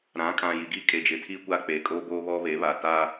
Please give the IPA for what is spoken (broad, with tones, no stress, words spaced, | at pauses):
ɾã˨˦kʼã˨ji˨ɡi˦ kʼe˨d͡ʒɪ˨tʰi˦ kʷa˦k͡peː˨kʼoː˦ boː˦βɔ˦βe˨˦βaː˨ taː˦